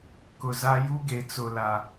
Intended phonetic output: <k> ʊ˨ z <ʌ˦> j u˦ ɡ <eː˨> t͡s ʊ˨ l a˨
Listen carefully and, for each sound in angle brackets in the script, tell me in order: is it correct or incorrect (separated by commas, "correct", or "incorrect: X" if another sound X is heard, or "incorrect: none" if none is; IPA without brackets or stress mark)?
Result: correct, incorrect: a˦, incorrect: e˨